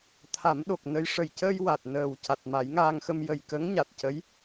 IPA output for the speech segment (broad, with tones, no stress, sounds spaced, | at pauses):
t̪ʰ a˨˩˦ m ɗ o˨˩ k̚ n ə˧ j ʂ ə˨˩ j c əː˧ j w a˨˩ t̚ n əː˨˩ w c a˨˩ t̚ m a˨˩˦ j ŋ aː˧ ŋ x ə˧ m j ə˨˩ j k ə˧˥ ŋ ɲ a˨˩ t̚ c ə˧˥ j